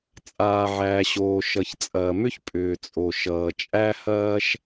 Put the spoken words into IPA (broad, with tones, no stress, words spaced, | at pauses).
t͡sʼaː˩ʕæː˩ɕoː˩ ʃʌ˩çt͡sʼɐː˩mʏ˥ç pʼʏː˩t͡sʼo˩ ʃʌː˩ t͡ʃʼæ˥hɐː˥ʃ